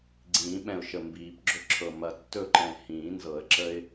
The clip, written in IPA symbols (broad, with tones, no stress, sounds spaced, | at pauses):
ɡ͡ǀ ĩː˨˩˦ ɓ ɛ̃˧˩ ʊ̯ ʃ ə˧˩ m b iː˨˩˦ p ɡ͡ǁ ɵ˥ ǁʰ ɤ˧˩ m ɐ˧˩ tː ɵ˥˧ ǃ ɛ̃˧˩ h ĩː˨˩˦ n z ɤ˨˩˦ ə̯ ǁ ə˥ ɪ̯